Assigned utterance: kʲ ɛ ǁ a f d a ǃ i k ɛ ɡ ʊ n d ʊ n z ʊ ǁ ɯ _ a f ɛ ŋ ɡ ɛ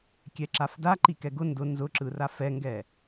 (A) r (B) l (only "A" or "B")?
A